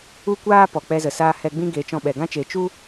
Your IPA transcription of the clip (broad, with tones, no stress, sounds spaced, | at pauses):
u˦ kʷ aː˦ p ɔ˨ k͡p ɛ˧ z ə˨ s aː˧ h ɛ˧ ɡ͡b ĩ˦ ɡ e˨˦ t͡ʃ ɔ̃˧ ɓ ɛ˨ ɡ ã˦ t͡ʃ e˨˦ t͡ʃ u˦